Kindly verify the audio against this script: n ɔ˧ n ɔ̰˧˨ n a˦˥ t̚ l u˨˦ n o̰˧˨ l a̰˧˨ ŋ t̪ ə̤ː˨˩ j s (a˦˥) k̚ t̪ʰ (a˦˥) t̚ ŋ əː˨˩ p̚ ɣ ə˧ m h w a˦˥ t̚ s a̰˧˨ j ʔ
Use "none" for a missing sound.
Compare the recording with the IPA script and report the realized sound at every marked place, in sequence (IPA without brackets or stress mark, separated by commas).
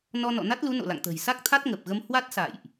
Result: a˦˥, a˦˥